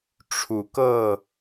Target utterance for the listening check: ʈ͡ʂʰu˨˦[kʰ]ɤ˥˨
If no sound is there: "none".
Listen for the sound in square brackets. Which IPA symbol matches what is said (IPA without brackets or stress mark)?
k